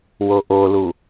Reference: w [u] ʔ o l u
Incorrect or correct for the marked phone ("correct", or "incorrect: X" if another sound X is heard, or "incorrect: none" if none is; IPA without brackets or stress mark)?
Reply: incorrect: o